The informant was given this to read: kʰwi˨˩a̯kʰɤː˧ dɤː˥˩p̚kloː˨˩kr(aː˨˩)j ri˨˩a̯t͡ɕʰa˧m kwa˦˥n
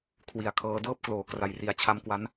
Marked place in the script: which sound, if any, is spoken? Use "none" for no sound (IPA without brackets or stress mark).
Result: a˨˩